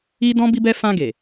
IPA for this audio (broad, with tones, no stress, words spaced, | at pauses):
i˦dɔ̃˦ bi˧bɛ˧fã˧ ɡe˨